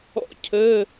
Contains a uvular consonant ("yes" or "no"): no